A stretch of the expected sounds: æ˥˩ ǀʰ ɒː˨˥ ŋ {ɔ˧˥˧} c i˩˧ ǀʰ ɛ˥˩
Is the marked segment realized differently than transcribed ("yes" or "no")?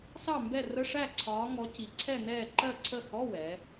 yes